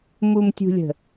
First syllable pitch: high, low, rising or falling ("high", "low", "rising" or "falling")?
low